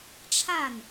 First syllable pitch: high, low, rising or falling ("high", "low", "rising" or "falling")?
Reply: falling